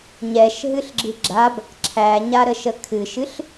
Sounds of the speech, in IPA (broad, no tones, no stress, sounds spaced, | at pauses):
ɲ ɛ ʃ ɦ ɨ ɬ ɡ͡ǁ ɨ ɡ͡ǁ a b | ǁʰ æ ɲ a ɾ ə ʃ ə kʰ ɨ ʃ ɨ ɬ